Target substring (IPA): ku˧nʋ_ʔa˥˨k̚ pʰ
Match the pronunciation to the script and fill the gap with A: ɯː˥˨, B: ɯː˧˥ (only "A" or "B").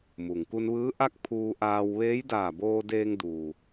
B